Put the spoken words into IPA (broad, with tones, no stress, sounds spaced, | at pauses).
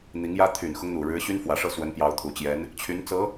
n̪ i˧˥ ŋ j ä˥ t̪ʰ y˨˩ n x ʊ˦ ŋ n̪ u˨˩ ɻ ɻ̩˧˥ ɕ y˥ n f w ä˨˩ ʂ ɤ˥˩ s w ə˧˥ n p j ɑ˧˥ ʊ̯ t̪ʰ u˨˩ t͡ɕ j ɛ˧˥ n | t͡ɕʰ y˧˥ n t͡s ɤ˧˥